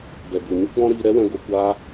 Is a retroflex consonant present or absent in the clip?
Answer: absent